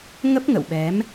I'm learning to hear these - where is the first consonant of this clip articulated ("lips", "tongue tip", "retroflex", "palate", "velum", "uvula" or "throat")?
velum